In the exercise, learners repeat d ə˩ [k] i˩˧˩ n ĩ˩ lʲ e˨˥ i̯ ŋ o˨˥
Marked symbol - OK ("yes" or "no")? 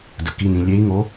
yes